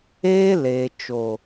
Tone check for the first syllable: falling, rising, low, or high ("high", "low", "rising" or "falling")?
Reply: high